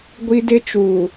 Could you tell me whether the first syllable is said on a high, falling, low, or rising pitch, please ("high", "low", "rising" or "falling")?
high